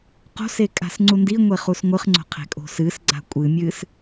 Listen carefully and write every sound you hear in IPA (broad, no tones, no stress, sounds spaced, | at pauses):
q o̤ s e kʼ a̤ s ŋ͡ǀ u n d i ŋʷ e χ u s ŋʷ ɨ χ ŋ͡ǀ o̤ qʰ e̤ kʼ o̤ s ɨː s ɡ͡ǀ a̤ kʷʼ ɨ mʲ ɨː s